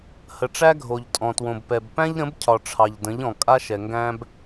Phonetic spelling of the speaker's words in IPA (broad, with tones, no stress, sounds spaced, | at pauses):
h ə˨ ʈ͡ʂ æ˦ ɡʱ o˨ ʎ tʼ ɔ̃˨ t w õ˨ b p ɛ˨ b p æ̃˦ ʎ ɾ ə̃˨˦ b cʰ ɒ˨ ʈ͡ʂʰ ɑ˨ ʎ d ə̃˨˦ ʎ ɔ̃˨ kʼ a˦ ʃ ɛ˨ ŋ ɡ æ̃˦ b